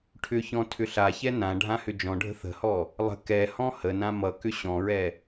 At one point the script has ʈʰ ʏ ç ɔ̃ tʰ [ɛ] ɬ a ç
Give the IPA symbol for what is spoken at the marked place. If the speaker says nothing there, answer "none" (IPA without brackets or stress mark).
ʏ